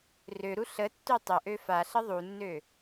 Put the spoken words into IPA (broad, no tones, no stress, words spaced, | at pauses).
røɾu ɬətːø tˤəʔø faɬə ðˤunːø